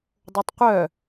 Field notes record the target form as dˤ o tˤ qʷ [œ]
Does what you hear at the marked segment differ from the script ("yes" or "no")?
no